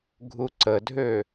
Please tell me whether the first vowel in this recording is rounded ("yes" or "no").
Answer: yes